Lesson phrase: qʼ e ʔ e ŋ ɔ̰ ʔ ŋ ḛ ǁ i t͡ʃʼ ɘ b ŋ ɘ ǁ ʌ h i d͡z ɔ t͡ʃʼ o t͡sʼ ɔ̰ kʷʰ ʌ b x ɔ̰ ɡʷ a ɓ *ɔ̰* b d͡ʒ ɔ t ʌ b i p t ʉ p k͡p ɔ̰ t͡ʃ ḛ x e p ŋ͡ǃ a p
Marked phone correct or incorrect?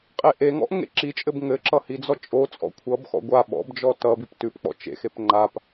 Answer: correct